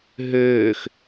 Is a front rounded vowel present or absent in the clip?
present